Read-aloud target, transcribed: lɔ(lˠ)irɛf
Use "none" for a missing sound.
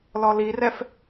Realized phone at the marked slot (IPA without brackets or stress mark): l